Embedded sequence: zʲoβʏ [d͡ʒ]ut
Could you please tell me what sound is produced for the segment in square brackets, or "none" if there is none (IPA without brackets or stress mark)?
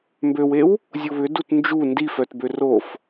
d